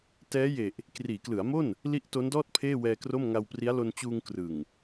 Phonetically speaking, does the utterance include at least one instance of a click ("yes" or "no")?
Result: no